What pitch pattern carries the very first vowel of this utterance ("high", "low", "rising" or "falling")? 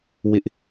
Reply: high